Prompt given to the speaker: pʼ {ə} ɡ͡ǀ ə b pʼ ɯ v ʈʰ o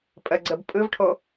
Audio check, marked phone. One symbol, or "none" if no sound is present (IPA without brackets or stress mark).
ə